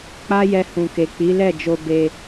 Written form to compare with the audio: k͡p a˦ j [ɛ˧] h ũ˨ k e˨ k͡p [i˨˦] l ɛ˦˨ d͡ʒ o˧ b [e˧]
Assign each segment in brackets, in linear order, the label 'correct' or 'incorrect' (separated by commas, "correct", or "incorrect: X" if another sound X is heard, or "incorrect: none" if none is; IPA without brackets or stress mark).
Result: correct, correct, correct